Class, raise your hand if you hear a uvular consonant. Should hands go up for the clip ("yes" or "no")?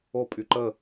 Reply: no